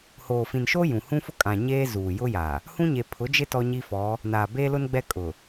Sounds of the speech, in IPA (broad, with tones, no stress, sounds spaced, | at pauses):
h oː˨ f ĩ˨ n ʃ o˦ j ũ˨ h ũ˦ f ʊ˦ kʼ ã˨ ɲ eː˦ z uː˨ j ʊ˦ j a˨ | h ũ˦ ɲ e˨ pʰ ʊ˨˦ d͡ʒ ɪ˦ t ɔ˦ ɲ i˦ f ɔ˨˦ | n aː˨ b eː˦ l ʊ˦ n ɡ͡b ɛ˦ kʼ ʊ˨